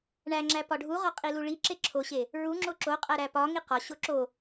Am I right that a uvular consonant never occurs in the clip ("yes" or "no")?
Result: no